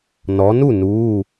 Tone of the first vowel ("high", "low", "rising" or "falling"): rising